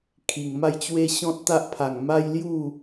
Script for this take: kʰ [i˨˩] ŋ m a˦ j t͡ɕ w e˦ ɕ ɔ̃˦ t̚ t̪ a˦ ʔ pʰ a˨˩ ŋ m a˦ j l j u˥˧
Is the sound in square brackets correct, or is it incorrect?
correct